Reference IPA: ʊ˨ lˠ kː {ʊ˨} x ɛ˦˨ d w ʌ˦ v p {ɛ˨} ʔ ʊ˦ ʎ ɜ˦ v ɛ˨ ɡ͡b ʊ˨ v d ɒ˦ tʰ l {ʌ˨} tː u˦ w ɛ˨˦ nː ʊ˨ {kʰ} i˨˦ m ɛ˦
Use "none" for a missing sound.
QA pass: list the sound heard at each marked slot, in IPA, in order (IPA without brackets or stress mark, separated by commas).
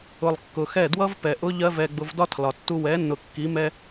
ʊ˨, ɛ˨, ɒ˨, kː